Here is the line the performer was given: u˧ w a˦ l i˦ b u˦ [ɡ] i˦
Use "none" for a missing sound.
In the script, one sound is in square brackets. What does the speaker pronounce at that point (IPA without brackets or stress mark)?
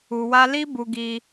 ɡ